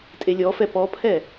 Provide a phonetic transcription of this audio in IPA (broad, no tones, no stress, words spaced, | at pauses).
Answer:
tʼelʲɔfɛ pɔpʰɛ